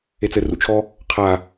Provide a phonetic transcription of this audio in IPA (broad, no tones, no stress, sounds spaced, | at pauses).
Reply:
e t͡s ɘ r ṵ t͡ʃʰ ɔ | qʰ a